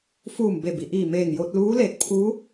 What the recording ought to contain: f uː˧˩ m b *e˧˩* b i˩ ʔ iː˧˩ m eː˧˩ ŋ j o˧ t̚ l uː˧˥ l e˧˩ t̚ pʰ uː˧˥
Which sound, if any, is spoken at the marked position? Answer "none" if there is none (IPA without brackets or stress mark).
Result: e˧˩